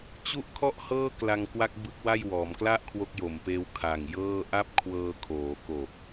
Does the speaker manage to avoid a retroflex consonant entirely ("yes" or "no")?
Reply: yes